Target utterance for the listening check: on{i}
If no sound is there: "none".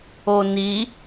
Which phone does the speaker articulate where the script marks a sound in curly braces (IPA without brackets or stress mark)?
i